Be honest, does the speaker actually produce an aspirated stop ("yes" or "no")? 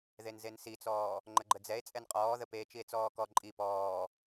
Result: no